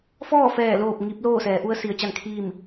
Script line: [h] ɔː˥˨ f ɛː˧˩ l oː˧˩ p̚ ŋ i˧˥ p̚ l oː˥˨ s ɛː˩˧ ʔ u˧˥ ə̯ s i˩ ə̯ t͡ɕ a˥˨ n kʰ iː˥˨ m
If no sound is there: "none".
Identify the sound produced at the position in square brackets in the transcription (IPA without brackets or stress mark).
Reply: f